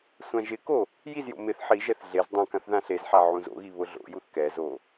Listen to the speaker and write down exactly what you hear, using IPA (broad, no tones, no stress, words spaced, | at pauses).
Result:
sʷãʒɪko | jizjo̰ mɪθ ħiʒɛθ ɮez dˤũkãθ ðãɬezħa ʕũzo̰ɣi βʊɮo̰juθ kɛzo